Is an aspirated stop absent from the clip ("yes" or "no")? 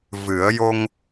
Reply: yes